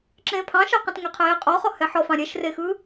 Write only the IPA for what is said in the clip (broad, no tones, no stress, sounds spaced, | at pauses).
ǁ ẽː pʰ ɑ̃ ʃ ɑ q ẽ t ŋ ɛ qʰ eː qʼ ɔ χ ɔ h ɛ ħ ɔ f ɑ̃ ɾʲ ɛ ʃ r e x ɯ